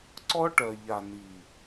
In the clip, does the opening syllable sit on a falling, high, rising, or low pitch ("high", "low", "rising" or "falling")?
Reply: high